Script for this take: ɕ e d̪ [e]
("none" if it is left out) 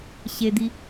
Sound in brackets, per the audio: i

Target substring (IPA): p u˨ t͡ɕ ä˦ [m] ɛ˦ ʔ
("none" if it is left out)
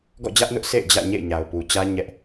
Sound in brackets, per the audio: ɲ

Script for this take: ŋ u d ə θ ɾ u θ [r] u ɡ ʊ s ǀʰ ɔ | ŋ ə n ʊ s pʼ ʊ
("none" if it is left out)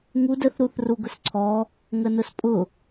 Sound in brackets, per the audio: r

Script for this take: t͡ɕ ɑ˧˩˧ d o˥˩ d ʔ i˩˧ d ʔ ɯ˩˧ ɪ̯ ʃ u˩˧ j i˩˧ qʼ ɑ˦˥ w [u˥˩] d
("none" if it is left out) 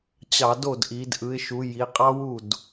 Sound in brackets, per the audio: u˥˩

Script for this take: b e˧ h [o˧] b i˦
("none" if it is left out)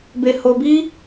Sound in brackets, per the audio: o˧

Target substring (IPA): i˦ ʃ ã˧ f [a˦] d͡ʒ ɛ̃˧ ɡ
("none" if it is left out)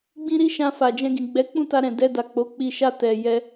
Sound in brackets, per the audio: a˨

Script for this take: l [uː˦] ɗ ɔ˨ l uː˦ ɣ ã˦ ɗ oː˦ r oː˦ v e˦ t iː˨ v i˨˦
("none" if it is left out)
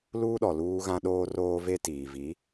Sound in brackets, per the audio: uː˦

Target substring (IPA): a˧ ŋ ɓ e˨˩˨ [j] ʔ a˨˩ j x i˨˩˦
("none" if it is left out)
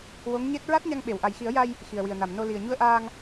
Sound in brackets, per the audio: w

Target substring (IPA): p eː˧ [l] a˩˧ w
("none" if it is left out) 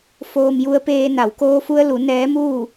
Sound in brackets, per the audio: n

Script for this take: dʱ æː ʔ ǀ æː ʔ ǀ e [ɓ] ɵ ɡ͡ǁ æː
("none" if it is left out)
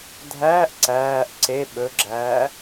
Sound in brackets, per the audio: ɓ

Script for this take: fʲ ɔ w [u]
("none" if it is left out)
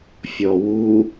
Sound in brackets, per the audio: u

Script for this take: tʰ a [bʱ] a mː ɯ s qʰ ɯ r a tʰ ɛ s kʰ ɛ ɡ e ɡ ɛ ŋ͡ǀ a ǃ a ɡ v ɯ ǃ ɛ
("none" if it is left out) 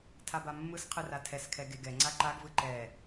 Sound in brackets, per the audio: b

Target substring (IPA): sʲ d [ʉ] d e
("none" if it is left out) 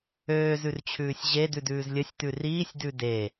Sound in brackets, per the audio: ʉ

